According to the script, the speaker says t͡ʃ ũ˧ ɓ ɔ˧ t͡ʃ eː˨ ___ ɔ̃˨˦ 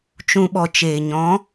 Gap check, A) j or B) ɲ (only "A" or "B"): B